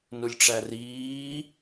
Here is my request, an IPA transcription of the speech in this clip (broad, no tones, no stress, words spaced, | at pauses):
nulʲʈ͡ʂæriː